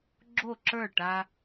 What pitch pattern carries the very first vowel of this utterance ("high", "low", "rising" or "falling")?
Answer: falling